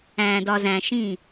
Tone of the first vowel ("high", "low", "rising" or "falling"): low